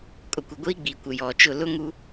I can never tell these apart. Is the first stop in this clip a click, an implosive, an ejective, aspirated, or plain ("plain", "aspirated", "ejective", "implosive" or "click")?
ejective